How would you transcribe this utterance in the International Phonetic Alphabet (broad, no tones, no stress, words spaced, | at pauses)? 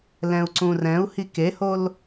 lɛ̃u̯ǀũrɛ̃u̯hi kehol